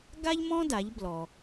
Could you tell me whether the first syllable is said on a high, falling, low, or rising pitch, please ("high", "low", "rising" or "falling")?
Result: high